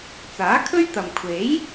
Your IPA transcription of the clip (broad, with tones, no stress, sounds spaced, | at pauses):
t͡s aː˨˥ kʰ ɵ˥ ɥ t̪ ɐ˨ m kʷʰ e˨˥ j